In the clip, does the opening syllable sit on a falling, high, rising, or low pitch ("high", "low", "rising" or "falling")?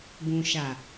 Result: low